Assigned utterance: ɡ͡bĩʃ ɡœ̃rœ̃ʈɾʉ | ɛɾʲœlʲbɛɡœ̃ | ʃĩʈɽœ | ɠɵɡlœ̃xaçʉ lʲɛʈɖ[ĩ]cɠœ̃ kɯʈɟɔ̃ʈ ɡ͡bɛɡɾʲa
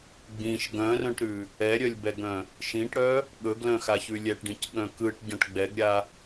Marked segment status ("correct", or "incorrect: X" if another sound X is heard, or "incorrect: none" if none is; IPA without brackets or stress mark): correct